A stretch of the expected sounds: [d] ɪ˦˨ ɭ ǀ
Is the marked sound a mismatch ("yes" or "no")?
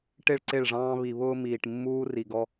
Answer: yes